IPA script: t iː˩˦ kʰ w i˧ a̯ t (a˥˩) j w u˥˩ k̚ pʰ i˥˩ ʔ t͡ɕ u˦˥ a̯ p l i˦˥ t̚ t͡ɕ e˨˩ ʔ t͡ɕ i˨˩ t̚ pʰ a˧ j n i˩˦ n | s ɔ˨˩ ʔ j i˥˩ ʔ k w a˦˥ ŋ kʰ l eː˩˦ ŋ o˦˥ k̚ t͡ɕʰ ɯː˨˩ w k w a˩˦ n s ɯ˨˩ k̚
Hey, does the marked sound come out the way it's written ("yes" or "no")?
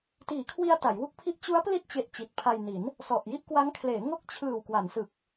no